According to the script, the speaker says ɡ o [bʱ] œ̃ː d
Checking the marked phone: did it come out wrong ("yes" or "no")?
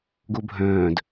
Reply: no